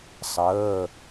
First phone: sˤ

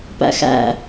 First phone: p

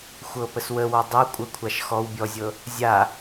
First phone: xʷ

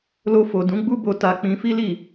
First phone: l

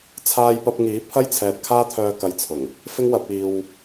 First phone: t͡sʰ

